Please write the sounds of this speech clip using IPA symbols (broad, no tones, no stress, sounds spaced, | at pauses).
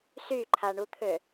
s y ǃʰ a ɳ u t̪ʰ ø